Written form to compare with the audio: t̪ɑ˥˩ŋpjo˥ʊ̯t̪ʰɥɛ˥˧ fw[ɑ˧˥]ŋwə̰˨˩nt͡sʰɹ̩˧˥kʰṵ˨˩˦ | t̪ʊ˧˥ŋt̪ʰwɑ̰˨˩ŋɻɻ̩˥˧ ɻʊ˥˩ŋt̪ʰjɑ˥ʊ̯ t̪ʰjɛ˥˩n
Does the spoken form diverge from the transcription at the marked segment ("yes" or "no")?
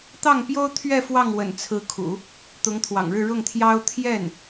yes